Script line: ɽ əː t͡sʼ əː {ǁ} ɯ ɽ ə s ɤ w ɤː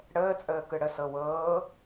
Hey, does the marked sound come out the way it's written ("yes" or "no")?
no